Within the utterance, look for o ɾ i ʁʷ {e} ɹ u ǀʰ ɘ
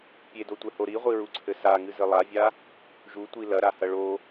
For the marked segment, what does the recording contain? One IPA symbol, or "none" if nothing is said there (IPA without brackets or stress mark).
i